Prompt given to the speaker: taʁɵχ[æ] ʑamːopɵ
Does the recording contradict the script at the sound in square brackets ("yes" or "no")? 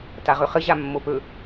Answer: yes